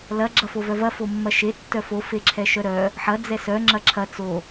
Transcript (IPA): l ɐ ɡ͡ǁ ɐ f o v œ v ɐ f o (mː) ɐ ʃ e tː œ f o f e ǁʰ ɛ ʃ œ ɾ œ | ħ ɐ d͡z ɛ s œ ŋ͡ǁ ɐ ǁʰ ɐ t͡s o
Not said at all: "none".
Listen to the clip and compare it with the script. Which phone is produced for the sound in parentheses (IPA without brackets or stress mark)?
mː